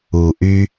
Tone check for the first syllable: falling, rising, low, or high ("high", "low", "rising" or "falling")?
low